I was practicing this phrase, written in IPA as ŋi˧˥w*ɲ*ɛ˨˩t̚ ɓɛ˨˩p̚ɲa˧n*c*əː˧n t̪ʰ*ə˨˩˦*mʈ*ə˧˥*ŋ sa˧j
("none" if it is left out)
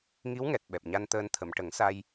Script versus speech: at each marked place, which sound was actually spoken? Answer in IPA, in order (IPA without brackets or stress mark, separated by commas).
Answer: ŋ, t̪, ə˨˩˨, ə˨˩˦